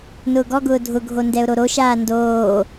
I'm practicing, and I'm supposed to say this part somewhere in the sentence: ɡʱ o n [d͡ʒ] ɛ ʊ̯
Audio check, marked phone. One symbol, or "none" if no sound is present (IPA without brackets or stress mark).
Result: d